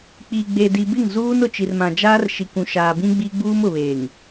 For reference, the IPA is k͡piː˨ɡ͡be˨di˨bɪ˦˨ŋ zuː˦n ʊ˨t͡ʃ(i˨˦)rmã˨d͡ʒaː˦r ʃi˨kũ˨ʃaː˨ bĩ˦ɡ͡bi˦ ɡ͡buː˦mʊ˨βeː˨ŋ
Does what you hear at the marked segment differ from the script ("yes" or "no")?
yes